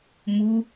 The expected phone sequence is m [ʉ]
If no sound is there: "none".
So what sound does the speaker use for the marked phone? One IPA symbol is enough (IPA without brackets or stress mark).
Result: u